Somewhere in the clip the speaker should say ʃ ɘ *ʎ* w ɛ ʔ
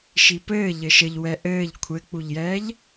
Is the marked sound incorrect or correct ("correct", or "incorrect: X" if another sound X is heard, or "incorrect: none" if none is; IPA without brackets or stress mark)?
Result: correct